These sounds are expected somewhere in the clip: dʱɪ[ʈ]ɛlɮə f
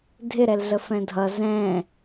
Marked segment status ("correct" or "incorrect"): incorrect